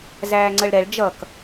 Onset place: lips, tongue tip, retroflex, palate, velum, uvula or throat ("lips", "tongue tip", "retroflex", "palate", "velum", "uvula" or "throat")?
tongue tip